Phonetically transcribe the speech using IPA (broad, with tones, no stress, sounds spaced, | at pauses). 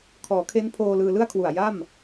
kʰ ɔː˩˦ kʰ e˦˥ n pʰ oː˧ l ɯː˧ l ɯ˥˩ a̯ kʰ w u˨˩ a̯ j a˥˩ m